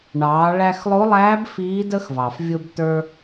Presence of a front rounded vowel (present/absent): absent